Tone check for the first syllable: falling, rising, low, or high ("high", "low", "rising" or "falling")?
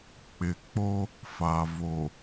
low